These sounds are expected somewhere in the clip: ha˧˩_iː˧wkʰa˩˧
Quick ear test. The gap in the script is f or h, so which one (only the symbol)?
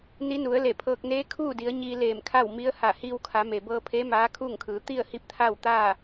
h